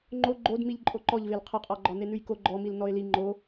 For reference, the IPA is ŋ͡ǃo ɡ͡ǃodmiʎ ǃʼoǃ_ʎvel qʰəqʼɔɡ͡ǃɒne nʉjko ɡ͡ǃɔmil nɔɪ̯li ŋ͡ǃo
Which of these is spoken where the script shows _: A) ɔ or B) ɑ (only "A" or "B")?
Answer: A